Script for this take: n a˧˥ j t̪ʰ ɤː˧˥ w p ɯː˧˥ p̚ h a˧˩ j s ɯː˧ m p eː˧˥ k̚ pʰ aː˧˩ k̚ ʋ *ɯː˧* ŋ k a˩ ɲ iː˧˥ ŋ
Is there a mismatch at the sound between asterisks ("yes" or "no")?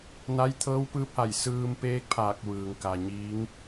yes